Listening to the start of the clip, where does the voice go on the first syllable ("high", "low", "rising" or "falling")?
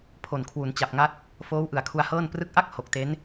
low